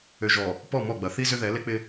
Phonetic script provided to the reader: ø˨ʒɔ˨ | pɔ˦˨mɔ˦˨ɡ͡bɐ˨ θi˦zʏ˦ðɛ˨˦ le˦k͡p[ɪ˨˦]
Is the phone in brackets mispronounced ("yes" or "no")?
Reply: yes